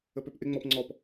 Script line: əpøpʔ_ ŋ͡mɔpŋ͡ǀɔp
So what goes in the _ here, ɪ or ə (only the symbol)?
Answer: ɪ